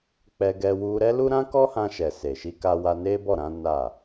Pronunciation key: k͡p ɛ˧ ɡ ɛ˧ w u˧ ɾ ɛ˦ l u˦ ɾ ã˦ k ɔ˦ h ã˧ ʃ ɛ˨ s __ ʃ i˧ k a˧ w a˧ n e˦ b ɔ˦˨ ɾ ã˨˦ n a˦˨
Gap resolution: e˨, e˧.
e˨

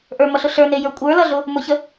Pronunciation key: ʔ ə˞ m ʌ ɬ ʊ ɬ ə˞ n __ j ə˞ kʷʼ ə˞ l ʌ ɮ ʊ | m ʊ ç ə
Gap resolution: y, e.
e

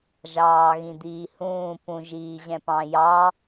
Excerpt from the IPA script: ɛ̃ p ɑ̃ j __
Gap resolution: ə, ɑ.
ɑ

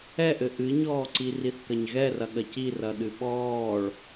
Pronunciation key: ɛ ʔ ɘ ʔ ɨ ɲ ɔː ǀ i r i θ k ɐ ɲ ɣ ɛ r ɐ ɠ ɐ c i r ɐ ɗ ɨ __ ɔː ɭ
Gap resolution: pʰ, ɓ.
ɓ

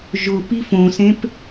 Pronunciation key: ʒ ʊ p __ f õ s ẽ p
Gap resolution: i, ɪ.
i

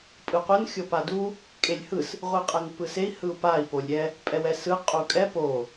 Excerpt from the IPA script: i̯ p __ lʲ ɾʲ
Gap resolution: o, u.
o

